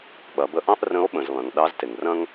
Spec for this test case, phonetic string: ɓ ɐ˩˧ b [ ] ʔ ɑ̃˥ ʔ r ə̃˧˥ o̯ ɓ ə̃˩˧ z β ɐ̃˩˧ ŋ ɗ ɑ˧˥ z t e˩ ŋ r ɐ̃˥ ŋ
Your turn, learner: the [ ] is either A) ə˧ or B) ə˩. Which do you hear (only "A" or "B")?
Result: A